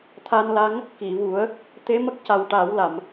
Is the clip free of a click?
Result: yes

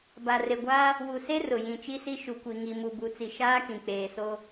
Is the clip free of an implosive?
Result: yes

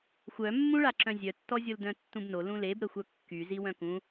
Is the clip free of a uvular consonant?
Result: yes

